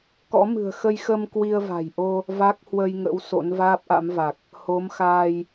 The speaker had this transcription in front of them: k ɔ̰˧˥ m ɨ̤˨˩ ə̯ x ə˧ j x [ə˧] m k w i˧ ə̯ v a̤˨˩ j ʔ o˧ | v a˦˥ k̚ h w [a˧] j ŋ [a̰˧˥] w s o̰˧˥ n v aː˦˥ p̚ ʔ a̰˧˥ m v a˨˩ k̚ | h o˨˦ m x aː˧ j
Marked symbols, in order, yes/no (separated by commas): yes, no, no